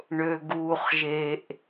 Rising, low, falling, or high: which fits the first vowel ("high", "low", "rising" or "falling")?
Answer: low